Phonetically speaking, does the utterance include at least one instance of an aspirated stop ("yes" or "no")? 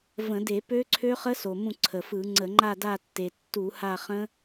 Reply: yes